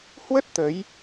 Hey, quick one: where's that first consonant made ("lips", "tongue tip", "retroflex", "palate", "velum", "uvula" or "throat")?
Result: throat